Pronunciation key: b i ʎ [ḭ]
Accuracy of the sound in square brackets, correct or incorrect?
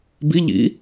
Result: correct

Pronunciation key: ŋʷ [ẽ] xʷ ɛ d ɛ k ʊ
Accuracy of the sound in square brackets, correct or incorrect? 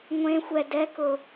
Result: correct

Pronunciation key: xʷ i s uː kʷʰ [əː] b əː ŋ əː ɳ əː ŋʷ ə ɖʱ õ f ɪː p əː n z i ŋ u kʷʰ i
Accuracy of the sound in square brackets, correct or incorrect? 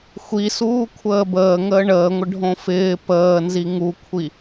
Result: correct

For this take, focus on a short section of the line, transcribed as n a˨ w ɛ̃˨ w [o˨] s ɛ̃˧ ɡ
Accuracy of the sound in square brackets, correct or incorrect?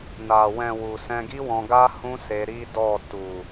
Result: incorrect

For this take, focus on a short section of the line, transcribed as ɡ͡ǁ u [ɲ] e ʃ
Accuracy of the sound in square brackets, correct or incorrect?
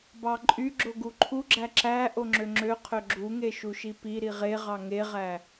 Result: incorrect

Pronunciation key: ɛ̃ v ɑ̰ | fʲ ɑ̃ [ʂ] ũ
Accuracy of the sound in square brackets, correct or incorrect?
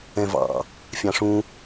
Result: correct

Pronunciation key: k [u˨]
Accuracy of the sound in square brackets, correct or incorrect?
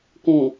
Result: incorrect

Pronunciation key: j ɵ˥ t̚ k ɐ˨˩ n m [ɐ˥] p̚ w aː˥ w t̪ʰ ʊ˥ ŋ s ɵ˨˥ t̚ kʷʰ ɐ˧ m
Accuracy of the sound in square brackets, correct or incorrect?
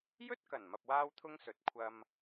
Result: incorrect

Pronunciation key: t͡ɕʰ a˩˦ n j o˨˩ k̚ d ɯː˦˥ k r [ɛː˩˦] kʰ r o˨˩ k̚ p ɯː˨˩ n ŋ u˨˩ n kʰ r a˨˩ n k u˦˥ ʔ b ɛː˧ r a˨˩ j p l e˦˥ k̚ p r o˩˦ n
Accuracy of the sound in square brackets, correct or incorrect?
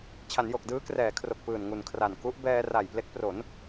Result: correct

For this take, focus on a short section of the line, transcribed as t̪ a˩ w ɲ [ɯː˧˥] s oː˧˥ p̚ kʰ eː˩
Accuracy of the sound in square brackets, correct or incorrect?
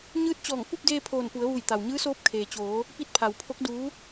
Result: correct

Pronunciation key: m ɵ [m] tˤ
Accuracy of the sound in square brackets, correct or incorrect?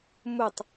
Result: incorrect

